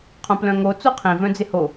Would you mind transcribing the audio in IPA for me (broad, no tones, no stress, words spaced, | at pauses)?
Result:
qʰõplœ̃ŋo t͡soqʰĩ vœ̃d͡zɪho